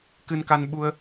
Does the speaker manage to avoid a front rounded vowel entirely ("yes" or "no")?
yes